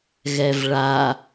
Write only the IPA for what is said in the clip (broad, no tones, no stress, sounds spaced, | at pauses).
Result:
ɣ ɛ v ɭ a